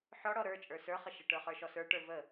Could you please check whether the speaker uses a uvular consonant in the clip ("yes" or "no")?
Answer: yes